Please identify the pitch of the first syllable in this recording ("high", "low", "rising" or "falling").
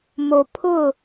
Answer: low